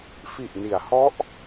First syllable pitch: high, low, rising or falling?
low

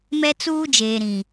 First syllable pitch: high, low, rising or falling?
high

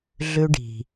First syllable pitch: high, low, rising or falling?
high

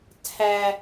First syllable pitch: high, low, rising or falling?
high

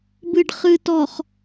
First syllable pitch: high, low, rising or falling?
low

